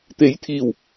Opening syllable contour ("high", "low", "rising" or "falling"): rising